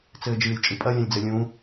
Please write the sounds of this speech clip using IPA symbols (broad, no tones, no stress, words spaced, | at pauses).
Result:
t͡sɘːd͡ʒɨːlʲt͡ʃʼɨpʼɐ lʲɛ̃lʲd͡zɘlʲũ